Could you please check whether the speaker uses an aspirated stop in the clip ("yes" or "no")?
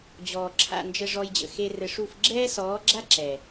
yes